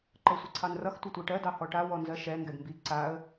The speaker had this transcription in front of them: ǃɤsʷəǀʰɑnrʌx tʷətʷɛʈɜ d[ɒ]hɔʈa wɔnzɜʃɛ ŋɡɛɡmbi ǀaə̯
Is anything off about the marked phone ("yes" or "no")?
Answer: yes